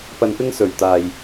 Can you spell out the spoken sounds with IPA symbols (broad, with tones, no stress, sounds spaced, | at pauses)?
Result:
p ɐ˧ n p ɪ˥ ŋ s ɵ˨ ɥ t̪ aː˧ j